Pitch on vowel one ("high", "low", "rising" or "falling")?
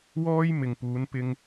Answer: high